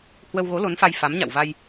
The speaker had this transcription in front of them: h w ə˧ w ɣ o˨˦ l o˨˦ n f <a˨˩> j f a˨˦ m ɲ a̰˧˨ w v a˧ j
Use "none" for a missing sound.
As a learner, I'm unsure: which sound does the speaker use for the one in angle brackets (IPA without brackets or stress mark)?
a˧